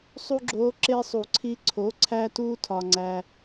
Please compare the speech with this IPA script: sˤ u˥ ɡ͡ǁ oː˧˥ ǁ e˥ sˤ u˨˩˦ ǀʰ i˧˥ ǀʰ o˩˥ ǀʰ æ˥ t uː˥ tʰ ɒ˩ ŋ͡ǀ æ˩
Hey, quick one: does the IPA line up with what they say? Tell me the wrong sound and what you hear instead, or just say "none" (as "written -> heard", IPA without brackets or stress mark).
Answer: none